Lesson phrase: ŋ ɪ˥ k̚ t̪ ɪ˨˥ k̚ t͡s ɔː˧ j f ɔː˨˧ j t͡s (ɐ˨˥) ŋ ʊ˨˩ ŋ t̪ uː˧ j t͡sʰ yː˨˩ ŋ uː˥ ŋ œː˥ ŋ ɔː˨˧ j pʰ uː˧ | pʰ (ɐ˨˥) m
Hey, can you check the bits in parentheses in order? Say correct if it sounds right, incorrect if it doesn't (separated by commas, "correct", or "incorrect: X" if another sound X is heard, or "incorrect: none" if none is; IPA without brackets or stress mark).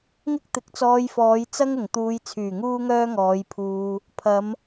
incorrect: ɐ˥, incorrect: ɐ˨˧